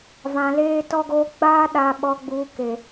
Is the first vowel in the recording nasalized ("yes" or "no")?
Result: yes